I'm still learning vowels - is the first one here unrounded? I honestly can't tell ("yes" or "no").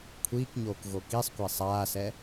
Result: yes